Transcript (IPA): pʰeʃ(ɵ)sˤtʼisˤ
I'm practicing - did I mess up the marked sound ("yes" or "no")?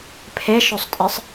no